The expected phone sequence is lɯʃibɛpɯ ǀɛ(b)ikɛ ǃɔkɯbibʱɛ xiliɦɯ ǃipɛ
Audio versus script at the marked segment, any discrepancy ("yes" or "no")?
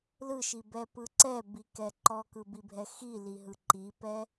no